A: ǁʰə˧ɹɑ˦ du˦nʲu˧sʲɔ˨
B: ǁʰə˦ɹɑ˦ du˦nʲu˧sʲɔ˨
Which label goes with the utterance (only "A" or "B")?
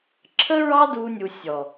B